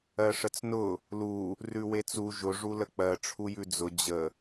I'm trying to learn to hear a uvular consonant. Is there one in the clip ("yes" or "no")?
no